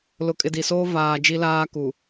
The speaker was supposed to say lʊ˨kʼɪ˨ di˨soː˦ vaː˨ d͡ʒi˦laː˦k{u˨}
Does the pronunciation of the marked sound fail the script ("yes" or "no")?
no